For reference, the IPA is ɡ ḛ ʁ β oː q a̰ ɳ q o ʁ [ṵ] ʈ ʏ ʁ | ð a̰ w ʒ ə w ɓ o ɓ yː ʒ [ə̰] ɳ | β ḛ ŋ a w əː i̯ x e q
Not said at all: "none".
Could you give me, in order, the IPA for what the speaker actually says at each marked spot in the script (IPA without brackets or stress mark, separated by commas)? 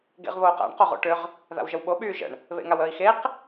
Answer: o̰, ə̰